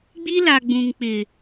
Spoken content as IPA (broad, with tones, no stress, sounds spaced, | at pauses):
ɡ͡b i˦ l a˨ ɡ͡b ũ˨ ŋ k͡p ɪ˨